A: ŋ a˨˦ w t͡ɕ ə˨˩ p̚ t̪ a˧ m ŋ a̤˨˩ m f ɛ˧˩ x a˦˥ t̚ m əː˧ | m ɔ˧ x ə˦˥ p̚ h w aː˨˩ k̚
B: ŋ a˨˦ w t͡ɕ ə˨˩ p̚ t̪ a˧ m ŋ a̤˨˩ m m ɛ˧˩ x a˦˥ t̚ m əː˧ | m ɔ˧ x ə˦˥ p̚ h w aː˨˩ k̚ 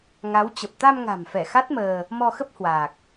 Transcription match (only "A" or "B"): A